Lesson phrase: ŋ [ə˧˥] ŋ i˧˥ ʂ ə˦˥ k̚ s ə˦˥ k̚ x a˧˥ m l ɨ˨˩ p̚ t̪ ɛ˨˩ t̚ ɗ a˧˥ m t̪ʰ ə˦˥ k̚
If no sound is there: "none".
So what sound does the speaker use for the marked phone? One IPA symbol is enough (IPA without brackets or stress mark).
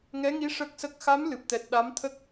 ɛ˧˥